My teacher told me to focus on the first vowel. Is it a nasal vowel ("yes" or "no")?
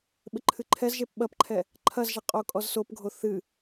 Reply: no